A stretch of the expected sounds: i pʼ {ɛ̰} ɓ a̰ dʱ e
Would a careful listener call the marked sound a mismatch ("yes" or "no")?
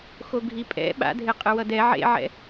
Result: no